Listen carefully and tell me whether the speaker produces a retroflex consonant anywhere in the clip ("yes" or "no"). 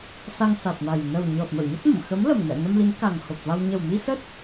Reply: no